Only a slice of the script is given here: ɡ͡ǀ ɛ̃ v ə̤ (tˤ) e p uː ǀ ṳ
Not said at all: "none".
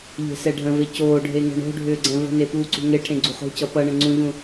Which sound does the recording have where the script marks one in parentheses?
n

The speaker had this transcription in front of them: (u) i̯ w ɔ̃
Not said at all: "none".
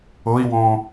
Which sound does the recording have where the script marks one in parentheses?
ʊ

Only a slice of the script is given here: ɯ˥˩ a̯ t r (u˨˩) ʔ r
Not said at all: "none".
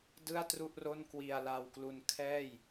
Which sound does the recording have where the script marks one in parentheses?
u˥˩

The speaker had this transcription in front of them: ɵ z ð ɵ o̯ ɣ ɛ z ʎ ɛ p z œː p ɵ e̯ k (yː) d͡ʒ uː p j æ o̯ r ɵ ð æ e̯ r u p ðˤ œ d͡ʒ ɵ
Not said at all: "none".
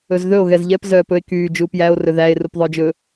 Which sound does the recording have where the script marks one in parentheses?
yː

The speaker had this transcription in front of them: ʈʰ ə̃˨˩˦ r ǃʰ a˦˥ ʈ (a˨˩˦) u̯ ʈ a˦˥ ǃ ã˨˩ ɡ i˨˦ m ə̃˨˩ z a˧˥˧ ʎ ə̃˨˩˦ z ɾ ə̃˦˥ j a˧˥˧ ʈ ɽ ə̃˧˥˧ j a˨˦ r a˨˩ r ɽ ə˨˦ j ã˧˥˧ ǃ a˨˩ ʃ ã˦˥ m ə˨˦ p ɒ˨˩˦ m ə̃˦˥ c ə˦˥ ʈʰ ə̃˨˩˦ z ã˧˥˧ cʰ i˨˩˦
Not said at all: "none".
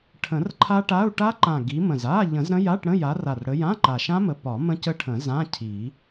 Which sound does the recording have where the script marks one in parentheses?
a˧˥˧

